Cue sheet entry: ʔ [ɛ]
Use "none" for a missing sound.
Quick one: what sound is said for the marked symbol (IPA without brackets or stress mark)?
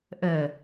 ɜ